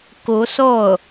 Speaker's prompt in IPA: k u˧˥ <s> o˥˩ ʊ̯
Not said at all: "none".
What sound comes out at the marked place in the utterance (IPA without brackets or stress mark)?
s